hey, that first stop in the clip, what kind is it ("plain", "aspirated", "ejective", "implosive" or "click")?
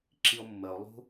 click